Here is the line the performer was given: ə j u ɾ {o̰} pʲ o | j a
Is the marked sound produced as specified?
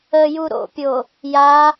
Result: yes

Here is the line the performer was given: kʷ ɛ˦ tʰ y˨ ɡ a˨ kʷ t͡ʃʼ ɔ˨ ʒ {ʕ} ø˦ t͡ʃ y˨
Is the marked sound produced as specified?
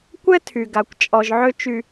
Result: yes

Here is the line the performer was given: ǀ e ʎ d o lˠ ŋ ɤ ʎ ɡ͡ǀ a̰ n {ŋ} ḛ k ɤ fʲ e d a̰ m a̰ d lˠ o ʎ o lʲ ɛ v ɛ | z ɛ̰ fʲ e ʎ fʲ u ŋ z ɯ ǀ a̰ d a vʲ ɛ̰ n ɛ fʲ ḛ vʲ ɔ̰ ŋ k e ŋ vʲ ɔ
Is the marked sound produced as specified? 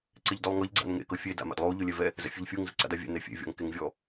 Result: yes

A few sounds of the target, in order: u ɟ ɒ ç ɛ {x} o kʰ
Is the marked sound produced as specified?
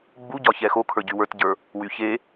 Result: yes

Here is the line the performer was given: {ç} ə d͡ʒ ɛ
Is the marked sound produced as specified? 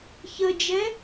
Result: yes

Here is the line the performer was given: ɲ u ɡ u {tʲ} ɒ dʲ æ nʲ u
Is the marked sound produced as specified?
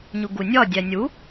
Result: no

